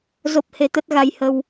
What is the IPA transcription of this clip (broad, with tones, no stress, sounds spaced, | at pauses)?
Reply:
z o˦˥ p̚ h e˨˦ t̪ ə˦˥ t̚ ɣ a˧ j h ə˧ w